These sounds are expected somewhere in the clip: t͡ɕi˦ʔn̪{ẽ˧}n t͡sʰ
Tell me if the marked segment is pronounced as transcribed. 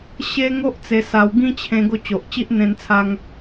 yes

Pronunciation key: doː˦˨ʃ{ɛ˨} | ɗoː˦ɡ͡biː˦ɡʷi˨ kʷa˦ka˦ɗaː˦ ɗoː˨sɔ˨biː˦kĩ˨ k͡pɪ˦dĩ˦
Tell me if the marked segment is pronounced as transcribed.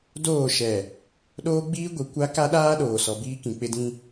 yes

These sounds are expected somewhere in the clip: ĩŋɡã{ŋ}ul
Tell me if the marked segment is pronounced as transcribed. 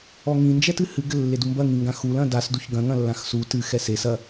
no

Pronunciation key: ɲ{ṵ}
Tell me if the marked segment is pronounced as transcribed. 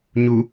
no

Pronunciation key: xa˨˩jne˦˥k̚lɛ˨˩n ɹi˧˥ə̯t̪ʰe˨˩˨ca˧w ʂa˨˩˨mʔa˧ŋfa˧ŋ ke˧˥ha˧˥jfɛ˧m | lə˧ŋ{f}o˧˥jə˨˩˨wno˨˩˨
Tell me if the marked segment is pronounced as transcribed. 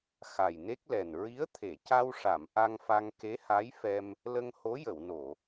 no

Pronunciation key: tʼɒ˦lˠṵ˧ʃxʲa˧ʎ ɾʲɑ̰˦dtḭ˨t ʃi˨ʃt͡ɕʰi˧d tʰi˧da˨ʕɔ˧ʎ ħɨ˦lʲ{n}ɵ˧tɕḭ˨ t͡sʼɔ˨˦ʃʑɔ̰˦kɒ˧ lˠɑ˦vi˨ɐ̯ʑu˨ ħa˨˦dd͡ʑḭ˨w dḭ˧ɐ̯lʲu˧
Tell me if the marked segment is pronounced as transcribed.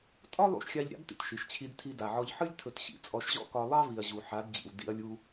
no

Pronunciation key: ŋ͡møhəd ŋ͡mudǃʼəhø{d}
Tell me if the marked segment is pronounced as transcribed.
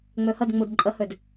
yes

